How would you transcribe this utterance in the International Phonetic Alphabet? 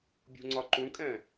bʲ ṳ ŋ͡ǀ ɒ ǃ ũ kʼ ɛ̃

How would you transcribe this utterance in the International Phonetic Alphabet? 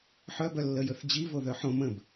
ħ œ b œ lː ə j ɵ θ d͡ʑ i v o ð œ ħ õ m ə̃ b

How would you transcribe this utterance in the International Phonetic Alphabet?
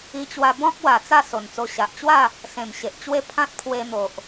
i˧ t͡ɕ w a˧ b ɔ̃˦ k̚ w a˨˩ t͡s a˥˧ s o˨˩ n t͡s o˧ ɕ a˨ ʔ t͡ɕ w a˥˧ | s ẽ˨˩ m ɕ e˨ ʔ t͡ɕ w e˦ pʰ ã˦ t̚ pʰ w e˧ n̪ o˨ ʔ

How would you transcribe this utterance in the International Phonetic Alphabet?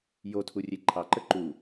j o tʰ u rʲ e ǃʰ ɑ ǃ ə ǃ u

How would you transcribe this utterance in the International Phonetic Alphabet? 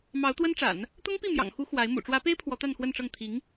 m ɑ˧˥ ʊ̯ t̪ w ə˥ n ʈ͡ʂ a̰˨˩˦ n | t̪ ʊ˥ ŋ p i˥˩ m j ɑ̰˨˩ ŋ x u˧˥ x w a˧˥ ɪ̯ m ṵ˨˩ ʈ͡ʂ w ä˧˥ p e˥ ɪ̯ pʰ w ɔ˧˥ t̪ a˥˧ n x w ə˥˧ n ʈ͡ʂ ɤ˥˩ ŋ t̪ʰ i˧˥ ŋ

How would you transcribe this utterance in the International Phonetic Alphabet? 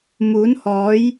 m uː˨˥ n h ɔː˨˥ j

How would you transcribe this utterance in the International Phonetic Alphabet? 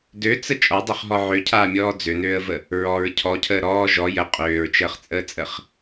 d ø t͡s ə t͡ʃʼ ɔ dˤ ø χ ɦ ɔ ʕ ø cʰ aː mʲ ɔː d͡z ø n øː ə̯ v ə | ɹ ɔ ɹ cʰ ɔ cʰ əː ɾ ɔː ʒ ɔ j ə qʼ øː ɹ t͡ʃ əː χ t͡sʼ əː t͡sʼ ə χ

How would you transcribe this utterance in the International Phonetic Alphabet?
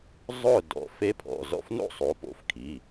zˤ ʊ˥˨ d ɔ̰˩˧˩ f e˧˥ pʰ ɔ̰˩˧˩ z ɔ̰˥˨ f n o̰˥˨ sˤ o˩˥ p o̰˩˧˩ f kʰ i˩˧˩

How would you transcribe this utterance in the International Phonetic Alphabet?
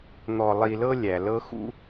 n̪ ɔ˨ lˠ i˨ l ɤ˦ lʲ æ˩ l ɤ˦ x ṵ˦

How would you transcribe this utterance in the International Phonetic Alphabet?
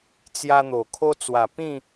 t͡s j a˧ n̪ o˨˩ kʰ o˧ t͡s w a˨˩ p ĩ˥˧

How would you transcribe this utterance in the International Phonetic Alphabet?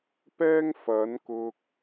p ɛː˥ ŋ f ɐ˨˥ n k ʊ˧ k̚

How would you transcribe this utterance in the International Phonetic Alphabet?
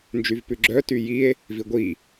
n d͡ʒ y v p ʉ ɡ͡ǁ œ t y j i e̯ | v i ɡʷ i

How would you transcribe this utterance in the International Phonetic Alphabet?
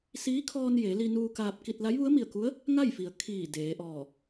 s iː˧˥ kʰ ɔː˧ n j e˩˧ l i˧ n uː˧ k aː˧ p̚ k i˧ t̚ l a˧˥ j ʋ u˧˥ ə̯ m i˧˩ ə̯ k u˧˥ ə̯ | ŋ a˥˨ j f i˩ ə̯ kʰ iː˧˩ d eː˩˧ ʔ ɔː˧˩

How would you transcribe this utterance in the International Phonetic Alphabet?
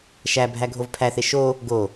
ʃ æ bʱ æ ɡʱ o v pʰ æ θ e ʃ o | ɡ o

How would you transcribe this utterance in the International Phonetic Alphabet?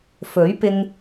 f ɵ˨˥ ɥ p ɪ˧ ŋ

